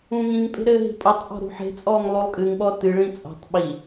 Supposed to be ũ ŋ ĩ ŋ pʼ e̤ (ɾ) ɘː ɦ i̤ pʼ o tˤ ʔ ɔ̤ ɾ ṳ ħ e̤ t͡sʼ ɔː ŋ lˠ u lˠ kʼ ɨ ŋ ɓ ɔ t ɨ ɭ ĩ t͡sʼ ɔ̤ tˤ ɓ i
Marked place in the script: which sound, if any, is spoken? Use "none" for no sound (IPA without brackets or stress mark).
ɾ